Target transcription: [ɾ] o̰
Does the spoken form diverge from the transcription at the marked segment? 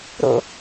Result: no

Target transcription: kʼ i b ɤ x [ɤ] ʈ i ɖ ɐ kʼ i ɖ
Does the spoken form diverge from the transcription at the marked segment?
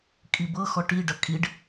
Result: yes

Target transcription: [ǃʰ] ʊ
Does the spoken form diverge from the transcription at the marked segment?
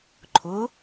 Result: no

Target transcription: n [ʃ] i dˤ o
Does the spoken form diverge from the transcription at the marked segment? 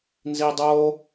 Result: yes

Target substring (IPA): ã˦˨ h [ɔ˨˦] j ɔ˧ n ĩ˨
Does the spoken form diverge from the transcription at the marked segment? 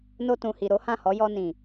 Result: no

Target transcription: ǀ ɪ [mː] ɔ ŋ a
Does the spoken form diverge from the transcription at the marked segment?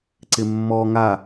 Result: no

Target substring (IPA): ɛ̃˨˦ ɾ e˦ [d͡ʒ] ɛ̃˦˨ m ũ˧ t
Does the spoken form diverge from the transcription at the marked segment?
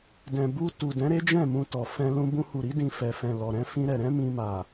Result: no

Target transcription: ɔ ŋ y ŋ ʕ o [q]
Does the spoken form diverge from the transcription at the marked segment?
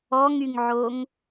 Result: yes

